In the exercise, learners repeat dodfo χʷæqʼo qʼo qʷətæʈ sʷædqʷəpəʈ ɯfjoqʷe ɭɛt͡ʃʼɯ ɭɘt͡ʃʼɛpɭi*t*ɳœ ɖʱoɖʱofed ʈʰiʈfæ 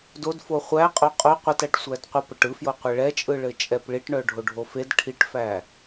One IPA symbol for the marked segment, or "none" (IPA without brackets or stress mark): ʈ